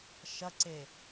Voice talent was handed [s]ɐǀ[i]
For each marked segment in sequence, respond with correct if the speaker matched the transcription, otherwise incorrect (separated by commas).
incorrect, incorrect